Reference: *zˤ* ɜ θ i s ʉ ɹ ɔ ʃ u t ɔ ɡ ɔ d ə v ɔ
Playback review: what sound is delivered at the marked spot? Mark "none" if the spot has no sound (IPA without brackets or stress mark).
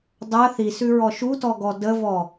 dˤ